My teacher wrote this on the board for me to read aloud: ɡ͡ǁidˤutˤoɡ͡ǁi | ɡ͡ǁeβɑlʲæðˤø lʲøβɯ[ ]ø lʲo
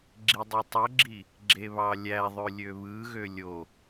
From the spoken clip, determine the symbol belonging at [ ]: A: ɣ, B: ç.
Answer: A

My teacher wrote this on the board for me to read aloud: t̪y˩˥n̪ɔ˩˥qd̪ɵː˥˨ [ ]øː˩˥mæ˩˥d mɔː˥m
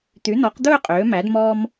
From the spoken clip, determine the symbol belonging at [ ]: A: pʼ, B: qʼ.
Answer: B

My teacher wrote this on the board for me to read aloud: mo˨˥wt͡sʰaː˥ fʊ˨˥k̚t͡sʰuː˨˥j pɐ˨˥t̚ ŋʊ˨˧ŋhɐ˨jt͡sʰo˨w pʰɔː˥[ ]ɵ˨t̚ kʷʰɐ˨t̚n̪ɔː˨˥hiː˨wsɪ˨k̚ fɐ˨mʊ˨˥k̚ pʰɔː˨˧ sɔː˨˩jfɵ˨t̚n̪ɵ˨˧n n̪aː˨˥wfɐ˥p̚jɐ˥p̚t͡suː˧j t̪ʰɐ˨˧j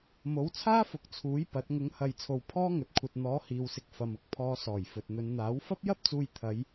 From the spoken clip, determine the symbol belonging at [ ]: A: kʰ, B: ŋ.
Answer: B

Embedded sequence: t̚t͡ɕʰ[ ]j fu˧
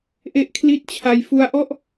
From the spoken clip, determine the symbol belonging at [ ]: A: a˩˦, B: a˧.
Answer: B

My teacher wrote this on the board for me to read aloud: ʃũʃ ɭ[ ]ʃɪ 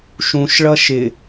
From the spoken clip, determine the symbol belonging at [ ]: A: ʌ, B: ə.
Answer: A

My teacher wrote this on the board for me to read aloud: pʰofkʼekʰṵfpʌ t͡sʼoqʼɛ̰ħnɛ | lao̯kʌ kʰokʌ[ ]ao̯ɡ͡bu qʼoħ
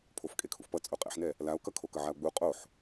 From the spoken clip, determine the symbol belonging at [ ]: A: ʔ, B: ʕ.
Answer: B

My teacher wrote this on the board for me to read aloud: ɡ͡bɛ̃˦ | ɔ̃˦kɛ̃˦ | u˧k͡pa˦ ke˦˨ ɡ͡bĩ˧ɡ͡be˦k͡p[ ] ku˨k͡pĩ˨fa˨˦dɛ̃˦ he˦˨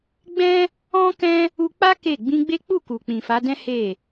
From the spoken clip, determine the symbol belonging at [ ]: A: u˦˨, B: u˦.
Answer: A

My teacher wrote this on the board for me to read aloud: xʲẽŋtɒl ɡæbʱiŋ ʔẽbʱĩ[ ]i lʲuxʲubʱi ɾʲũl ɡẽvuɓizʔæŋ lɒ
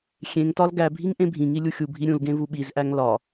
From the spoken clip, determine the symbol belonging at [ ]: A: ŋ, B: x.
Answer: A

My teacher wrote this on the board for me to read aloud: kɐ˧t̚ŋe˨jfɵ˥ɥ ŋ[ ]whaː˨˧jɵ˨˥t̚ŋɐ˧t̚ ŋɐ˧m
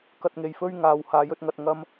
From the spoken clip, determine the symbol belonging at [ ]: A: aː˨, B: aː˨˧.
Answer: B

